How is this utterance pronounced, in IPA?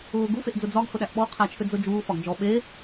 ʊː ɡufeʔd͡zʊ d͡zɒɡ hʊɗæʔɓɔ qʰæt͡ʃʰʏd͡zʊd͡ʒuː fɒɡd͡ʒɔ ɓe

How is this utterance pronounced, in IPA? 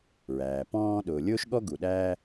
ɹæː˩ pɔ̃ː˧ ɗʊː˩lʲʊː˥ʃɠɔ˥ɡu˩ ɗæː˥

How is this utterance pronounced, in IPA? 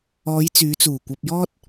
ɔː˨˧jt͡syː˨˧t͡suː˨˩kʷɐ˧p̚ jɔː˥t̚

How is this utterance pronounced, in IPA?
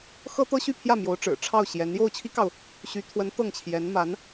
xɤ˥t̪ɤ˥ɕy˥˧pʰjä˥˩ mjo˧˥ʊ̯ʈ͡ʂɻ̩˨˩ ʈ͡ʂʰɑ˥˩ʊ̯ɕjɛ˧˥n jo˥˩ʊ̯t͡ɕʰi˥kɑ˨ʊ̯ | ɕy˧˥t̪ʰwə˧˥n t̪ɤ˥˩ŋt͡ɕʰjɛ˧˥n ma˧˥n

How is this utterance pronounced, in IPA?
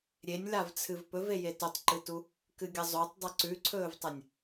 ɾʲenʲlavt͡sʰɨv pɵveje totˤǃɨtu | kɨɡʲɐzˤotˤ dˤɨǀʉǀʰɵːvtˤɐnʲ

